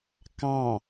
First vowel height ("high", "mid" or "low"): low